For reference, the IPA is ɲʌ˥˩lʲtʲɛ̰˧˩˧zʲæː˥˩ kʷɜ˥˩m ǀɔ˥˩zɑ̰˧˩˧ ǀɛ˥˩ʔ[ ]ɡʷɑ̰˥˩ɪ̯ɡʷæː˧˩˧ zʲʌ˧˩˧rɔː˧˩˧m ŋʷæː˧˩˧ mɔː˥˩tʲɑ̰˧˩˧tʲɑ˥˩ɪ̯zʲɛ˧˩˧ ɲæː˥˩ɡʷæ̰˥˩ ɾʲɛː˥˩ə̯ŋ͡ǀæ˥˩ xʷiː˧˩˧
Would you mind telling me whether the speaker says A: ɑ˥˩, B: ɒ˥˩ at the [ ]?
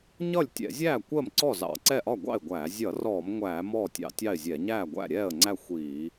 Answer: B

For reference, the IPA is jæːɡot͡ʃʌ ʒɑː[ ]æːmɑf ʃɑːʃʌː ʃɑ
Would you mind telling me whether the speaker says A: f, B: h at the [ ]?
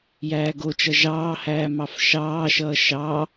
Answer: B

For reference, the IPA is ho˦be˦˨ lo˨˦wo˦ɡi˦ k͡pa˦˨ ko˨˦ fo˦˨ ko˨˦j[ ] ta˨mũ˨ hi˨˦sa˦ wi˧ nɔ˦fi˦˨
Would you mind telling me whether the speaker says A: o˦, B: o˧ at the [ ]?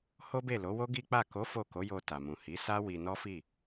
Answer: B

